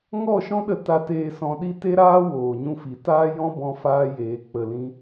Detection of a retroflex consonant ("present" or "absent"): absent